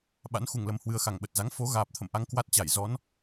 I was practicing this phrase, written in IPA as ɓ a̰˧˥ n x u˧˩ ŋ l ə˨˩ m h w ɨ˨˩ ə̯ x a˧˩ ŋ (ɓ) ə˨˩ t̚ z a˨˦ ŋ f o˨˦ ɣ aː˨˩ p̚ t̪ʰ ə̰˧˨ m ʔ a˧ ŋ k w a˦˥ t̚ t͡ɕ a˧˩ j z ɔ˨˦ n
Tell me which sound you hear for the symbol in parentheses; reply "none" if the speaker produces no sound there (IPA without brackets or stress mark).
ɓ